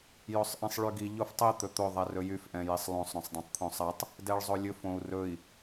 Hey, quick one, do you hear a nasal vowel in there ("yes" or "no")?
yes